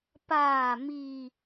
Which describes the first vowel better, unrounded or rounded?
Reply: unrounded